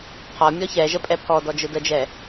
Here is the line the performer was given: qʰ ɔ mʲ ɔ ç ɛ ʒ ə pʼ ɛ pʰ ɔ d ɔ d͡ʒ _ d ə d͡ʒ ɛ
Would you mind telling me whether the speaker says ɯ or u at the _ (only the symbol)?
ɯ